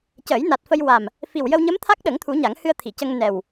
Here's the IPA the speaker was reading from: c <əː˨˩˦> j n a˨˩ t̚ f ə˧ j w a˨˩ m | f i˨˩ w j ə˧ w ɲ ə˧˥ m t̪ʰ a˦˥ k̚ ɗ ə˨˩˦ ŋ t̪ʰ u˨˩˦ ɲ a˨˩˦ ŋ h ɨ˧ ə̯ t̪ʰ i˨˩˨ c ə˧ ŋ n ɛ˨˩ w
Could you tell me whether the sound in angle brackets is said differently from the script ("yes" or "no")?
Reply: no